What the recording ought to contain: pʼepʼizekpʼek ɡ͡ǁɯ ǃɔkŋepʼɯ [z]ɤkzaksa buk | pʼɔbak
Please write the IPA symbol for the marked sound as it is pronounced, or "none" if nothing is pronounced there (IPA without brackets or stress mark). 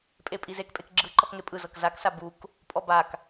z